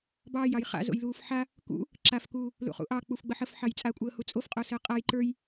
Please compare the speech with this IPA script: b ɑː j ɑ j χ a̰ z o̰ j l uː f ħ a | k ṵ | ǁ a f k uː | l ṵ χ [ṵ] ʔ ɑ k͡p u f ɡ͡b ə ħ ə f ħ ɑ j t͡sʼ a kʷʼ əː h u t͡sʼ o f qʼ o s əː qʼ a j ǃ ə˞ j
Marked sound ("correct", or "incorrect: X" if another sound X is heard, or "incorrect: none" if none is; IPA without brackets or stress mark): correct